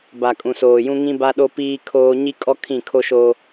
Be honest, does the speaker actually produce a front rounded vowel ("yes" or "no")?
no